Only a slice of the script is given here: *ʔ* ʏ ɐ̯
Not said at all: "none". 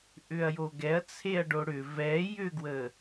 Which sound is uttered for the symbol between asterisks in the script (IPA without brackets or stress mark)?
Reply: ʔ